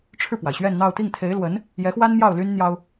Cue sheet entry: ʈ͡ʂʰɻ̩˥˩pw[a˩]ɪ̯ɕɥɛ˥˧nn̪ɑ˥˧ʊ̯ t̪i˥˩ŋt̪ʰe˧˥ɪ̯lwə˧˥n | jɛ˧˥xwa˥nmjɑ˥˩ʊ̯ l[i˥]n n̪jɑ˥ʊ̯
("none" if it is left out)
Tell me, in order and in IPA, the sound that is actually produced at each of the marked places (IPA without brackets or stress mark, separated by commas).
a˩, y˥